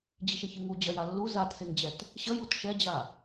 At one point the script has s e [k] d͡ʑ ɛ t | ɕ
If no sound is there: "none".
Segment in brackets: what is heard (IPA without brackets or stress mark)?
ŋ